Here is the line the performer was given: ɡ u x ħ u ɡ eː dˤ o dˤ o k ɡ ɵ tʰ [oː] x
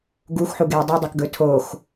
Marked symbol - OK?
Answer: yes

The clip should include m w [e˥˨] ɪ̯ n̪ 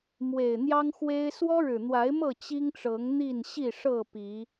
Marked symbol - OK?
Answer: no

